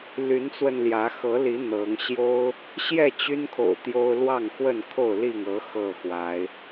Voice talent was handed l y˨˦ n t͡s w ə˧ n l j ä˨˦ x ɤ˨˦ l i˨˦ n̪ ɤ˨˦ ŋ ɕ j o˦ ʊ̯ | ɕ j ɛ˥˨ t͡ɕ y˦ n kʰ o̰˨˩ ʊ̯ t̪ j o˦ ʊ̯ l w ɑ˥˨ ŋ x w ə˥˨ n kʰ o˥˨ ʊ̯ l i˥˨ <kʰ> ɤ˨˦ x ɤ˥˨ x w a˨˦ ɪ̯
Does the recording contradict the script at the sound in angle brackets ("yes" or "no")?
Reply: yes